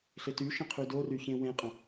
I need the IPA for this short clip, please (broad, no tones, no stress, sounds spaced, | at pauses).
ɬ ɪ t y ʃ ə̃ qʰ y d o r y ç ẽ w ẽ qʼ ə̃